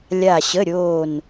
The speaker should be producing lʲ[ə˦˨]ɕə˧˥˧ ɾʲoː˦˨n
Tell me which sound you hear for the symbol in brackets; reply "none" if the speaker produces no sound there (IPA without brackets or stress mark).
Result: a˦˨